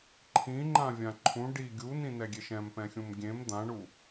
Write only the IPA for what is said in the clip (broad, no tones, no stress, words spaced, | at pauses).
ǃʰĩŋ͡ǃãvʲã ǃʰũ ɖi ɡʲunĩnɛɡʲeʃ ɛ̃mpɛ̃xʲũm ɡʲẽm d̪ãɳu